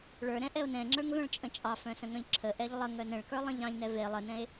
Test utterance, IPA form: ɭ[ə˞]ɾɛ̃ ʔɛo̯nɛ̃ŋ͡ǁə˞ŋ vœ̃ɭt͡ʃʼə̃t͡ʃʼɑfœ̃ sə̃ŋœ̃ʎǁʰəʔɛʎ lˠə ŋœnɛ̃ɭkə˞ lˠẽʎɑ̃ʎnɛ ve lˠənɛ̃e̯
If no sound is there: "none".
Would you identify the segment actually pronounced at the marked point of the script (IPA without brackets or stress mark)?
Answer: ə˞